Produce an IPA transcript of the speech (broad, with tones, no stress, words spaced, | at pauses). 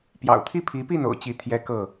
pjɑ̰˨˩ʊ̯t̪ʰi˦pʰi˨˦pi˥˨n o̰˨˩ʊ̯t͡ɕi˨˦ t̪ʰjɛ˦kɤ˥˨